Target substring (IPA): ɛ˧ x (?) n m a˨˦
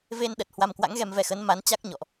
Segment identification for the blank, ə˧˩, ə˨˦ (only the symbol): ə˨˦